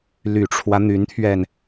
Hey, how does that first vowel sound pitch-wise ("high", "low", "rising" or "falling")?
low